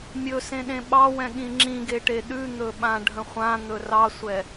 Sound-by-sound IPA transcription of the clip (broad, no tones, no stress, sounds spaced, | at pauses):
mʲ ɵ s ẽ ɗ ẽ ɓ ɑ w ɛ̃ ɠ ĩ ŋ͡ǁ ĩ ɡ e ʈ e ɗ ʉ n̪ ɵ ɓ ã ɖʱ ə̃ χʷ ã n̪ ɵ r ɑ sʷ ɛ